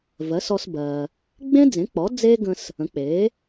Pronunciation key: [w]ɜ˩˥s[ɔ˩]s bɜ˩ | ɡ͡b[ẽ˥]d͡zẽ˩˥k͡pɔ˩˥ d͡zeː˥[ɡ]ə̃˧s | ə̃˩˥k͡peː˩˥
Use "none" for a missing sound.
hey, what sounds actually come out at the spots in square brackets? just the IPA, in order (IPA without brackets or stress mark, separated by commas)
v, ɔ˧, ẽ˥, ɡ